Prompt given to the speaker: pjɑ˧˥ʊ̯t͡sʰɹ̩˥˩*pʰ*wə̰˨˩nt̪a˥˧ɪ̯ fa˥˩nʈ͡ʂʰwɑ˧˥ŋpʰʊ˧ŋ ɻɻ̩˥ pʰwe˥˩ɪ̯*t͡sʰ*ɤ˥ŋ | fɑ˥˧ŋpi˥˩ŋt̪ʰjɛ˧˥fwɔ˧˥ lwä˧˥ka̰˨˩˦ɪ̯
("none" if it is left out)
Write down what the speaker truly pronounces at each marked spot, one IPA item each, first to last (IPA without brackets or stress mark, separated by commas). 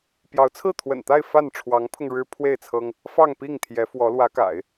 t̪ʰ, t͡sʰ